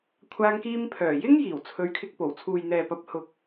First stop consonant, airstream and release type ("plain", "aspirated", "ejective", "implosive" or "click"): aspirated